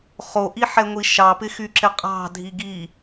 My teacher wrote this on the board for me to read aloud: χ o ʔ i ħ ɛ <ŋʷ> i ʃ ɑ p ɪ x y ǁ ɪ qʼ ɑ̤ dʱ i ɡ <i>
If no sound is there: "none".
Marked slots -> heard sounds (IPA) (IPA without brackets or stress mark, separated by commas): ŋʷ, i